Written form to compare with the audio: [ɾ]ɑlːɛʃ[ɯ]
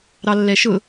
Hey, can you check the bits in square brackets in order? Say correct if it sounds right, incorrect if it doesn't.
correct, incorrect

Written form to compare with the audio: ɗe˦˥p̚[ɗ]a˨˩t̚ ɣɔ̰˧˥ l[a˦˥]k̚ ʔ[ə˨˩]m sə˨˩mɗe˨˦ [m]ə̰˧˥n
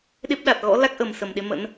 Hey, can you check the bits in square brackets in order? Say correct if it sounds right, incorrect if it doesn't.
correct, correct, correct, correct

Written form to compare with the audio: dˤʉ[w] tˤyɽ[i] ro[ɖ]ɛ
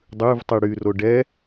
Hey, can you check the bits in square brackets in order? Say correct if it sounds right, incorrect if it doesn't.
incorrect, incorrect, correct

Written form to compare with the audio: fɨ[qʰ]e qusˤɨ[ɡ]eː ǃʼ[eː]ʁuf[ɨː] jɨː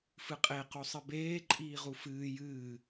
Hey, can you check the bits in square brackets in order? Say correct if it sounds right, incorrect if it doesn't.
incorrect, incorrect, incorrect, correct

